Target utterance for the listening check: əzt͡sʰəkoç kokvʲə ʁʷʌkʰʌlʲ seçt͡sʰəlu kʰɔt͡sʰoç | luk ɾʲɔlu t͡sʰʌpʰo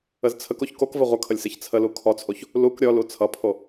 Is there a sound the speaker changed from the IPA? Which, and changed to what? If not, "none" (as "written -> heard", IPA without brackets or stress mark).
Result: vʲ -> v